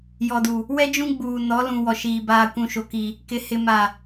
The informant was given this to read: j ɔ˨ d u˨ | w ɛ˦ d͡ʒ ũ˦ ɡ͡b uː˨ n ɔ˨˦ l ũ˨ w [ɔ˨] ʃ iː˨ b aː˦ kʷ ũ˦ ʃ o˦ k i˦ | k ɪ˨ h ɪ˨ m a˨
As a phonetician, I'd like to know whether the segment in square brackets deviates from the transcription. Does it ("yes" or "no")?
no